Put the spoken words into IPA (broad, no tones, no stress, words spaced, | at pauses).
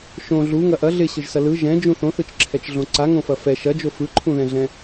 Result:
ʃõ ɮuŋɐ ʔɐ ɮɪɕɯʒsɐ lɯ ʒɛ̃d͡ʒũ θõθɯt͡ʃǁʰɛt͡ʃɮõ ǀaŋõfɐ fɛ ʃɐd͡ʒo fɯǃʰũðɛ̃ɮɛ̃